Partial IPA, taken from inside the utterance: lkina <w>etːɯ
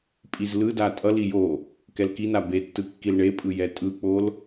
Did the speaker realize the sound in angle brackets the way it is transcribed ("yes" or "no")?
no